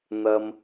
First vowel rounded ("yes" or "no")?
no